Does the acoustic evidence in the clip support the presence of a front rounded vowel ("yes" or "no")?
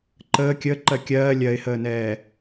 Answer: no